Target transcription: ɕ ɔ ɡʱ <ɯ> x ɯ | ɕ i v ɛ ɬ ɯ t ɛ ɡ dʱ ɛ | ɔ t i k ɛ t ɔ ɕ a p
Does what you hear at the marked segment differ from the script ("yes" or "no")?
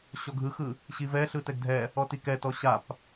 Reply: no